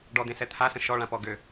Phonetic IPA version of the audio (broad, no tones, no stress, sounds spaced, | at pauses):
ɖ ɔ d̪ ẽ s ɛ t̪ʰ a s ə̃ ʃ ɔ ɭ ã p ɔ ɡ ø